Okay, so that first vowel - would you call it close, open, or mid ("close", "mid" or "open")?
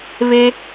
mid